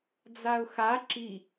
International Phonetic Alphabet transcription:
d͡z a ʊ̯ x a ǁ i

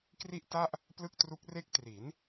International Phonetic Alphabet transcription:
k r i˥˩ ʔ t a˥˩ ʔ | p l ɯ˥˩ k̚ t r u˦˥ k̚ r e˦˥ k̚ t r i˩˦ n

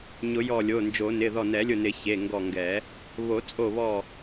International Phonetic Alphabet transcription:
ɲ ʊ˨˩˦ j ɔ˧˩ lʲ o˩˧˩ n d͡ʒ o˨˩˦ n ɪ˩˧˩ ð ɔ˧˩ n ɛ˨˩˦ lʲ ʊ˧˩ n ɪ˨˩˦ ç e˩˧˩ ŋ ɡ ɔ˧˩ ŋ ɡ ɛ˨˩˦ | β o˨˩˦ t͡sʼ o˧˩ β ɔ˧˩

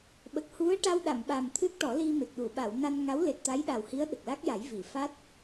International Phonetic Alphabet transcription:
ɓ ə˨˩ k̚ h u˧˥ ə̯ ʈ a˧ w ɗ a˨˩˨ m ɓ a˨˩ m t̪ʰ ɨ˦˥ k̚ ʈ ɔ˨˩˦ l i˧ m e˨˩ k̚ ɗ u˨˩˨ ɓ a˨˩˨ w n a˧ n ŋ a˧˥ w l e˨˩ t̚ t̪ a˧˥ j ɗ a˨˩ w h i˧˥ ə̯ ɗ ə˨˩ k̚ l a˦˥ k̚ j a˨˩˦ j v i˨˩˨ f a˦˥ t̚

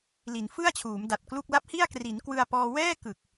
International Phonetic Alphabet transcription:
l i˩˦ n f ɯ˥˩ a̯ t͡ɕʰ uː˩˦ m d a˨˩ t̚ k l u˥˩ k̚ l a˦˥ p̚ h i˥˩ a̯ k r i˩˦ n k w ɯ˧ a̯ p ɔː˧ w ɛː˥˩ k ɯ˨˩ k̚

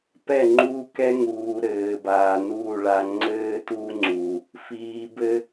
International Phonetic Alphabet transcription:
p ɛ˦˨ ŋ͡ǃ uː˧ k ɛ˦ ŋ uː˨ ɾ ɘː˨ b aː˨ n uː˦˨ ɭ a˧ ŋ͡ǀ ɘː˦ t u˦ ŋ͡ǀ u˨ | f iː˨ b ɘ˦

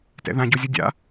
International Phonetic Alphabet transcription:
t ɛ̰ ð ã ɟ o zʲ o dʲ a̰

